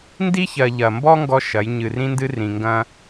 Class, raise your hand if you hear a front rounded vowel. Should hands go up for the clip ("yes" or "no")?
no